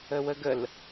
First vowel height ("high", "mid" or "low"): mid